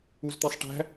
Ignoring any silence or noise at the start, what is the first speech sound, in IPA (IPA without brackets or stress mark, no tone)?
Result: u